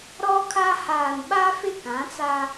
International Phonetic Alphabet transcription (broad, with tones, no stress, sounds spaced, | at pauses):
ɾ ɔ˦ kʰ a˦ h aː˨ n ɓ a˦ f ɪ˦˨ k ã˨˦ t͡s a˦